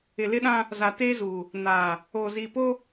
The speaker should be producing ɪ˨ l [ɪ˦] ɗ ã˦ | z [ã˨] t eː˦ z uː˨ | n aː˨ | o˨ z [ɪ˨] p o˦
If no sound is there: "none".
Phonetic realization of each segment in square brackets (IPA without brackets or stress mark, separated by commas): ɪ˦, a˨, i˨